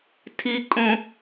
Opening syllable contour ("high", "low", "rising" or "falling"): high